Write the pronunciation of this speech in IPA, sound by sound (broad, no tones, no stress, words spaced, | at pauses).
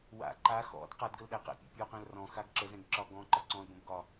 wa̰ ǃa xɔ̰d qadɡəlɗæ qæ̰pʲa̰pʲɔqæ̃l rɔ̃xaɡ ǁəzɛ̃ɡ ǁɒɡɔ̃ ǃɒǀɔ̃l bə̃bɡɒ